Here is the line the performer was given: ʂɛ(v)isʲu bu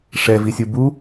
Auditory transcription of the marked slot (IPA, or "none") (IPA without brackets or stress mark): v